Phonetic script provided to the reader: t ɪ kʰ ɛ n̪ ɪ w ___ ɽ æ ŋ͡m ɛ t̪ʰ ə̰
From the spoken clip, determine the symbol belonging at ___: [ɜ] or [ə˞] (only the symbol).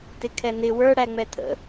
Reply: ə˞